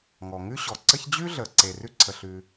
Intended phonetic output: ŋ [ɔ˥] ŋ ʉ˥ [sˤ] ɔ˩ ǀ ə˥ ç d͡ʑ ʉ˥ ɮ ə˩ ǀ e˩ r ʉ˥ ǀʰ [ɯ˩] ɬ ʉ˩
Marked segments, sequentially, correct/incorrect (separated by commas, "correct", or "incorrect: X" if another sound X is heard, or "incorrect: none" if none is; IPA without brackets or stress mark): incorrect: ɔ˩, incorrect: ɕ, incorrect: ə˩